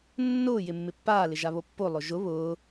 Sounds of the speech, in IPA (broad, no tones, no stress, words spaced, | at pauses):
nːʊː jɪmːɪpːaː lɪʒaβopːo lˠʊʒʊ βʊː